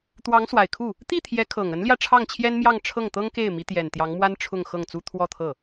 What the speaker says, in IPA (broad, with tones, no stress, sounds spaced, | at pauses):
t̪ w ɑ˧˥ ŋ s w a˨˩ ɪ̯ kʰ u˥˩ | t̪ i˥˩ t̪ʰ j ɛ˧˥ kʰ ɤ˨˩ ŋ ə˧˥ n l j ä˧ ʈ͡ʂʰ ɑ˥˩ ŋ t͡ɕʰ j ɛ˥ n m j ɑ˥˧ ŋ ʈ͡ʂʰ ɤ˥˩ ŋ t̪ ɤ˥ ŋ k e˥˩ ɪ̯ m i˧˥ t̪ j ɛ˨˩ n t̪ j ɑ˧˥ ŋ m w a˥ n ʈ͡ʂʰ ʊ˥˧ ŋ x ɤ˥˩ ŋ t͡s u˥ t̪ʰ w ɔ˥˧ t̪ʰ ɤ˥˩